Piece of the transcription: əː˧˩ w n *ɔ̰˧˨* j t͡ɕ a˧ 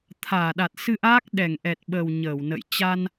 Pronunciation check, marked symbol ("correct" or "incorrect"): incorrect